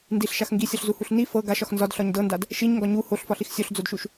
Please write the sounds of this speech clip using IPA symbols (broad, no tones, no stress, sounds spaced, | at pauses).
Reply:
n d i ɬ ʃ a x ŋ ɡ i sʲ ɒ ɬ z u h u ɬ n i f ɤ ɡ a ʃ ɒ x n z ɒ d ɬ ɒ ɲ d ɤ n d a d | ʃ i ɲ ŋ ɡ ɒ ɲ u h o ɬ f ɒ ɬ i x sʲ o ɬ d͡z o d ʃ u ʃ